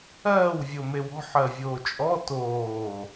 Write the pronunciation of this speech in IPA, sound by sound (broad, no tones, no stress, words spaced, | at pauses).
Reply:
ɜːw vʲomewɔ̤ ħɜvʲoːt͡ʃʼɔ toː